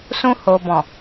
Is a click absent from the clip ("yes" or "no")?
yes